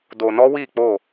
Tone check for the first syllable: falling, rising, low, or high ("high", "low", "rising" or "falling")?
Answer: low